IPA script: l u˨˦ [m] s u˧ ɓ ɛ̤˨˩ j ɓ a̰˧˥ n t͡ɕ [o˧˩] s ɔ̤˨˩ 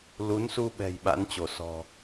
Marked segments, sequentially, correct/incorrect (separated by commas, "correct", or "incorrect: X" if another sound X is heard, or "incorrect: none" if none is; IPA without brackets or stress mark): incorrect: n, correct